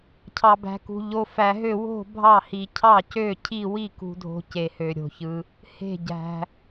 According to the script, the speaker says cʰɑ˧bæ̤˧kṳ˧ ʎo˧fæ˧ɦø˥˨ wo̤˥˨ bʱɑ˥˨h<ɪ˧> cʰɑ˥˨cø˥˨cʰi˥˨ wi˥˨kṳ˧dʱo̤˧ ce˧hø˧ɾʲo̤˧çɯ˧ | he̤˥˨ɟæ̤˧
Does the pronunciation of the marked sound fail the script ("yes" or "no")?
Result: yes